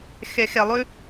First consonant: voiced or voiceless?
voiceless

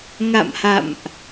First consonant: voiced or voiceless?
voiced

